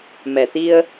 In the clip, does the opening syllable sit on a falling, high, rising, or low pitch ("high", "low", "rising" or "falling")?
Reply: low